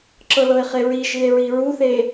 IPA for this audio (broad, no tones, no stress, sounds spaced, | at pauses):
ǁ ɤ l ɤ e̯ χ e ɹ i ʒ ɨ e̯ ɹ i ɹ u θ e